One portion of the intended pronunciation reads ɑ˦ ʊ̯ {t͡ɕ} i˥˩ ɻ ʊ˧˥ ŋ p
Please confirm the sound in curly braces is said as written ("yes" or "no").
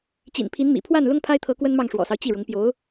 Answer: yes